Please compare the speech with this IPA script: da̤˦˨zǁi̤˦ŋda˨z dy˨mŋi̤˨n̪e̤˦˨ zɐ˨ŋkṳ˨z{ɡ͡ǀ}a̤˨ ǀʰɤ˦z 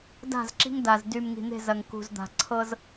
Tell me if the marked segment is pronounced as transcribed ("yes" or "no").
no